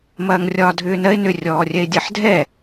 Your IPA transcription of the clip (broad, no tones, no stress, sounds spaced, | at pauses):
m ɐː ŋ rʲ ɒː dʱ ʏː n ɜ ɪ̯ n ʏ rʲ ɔː rʲ ɛ ɪ̯ dʲ ɜ ħ dʱ ɛ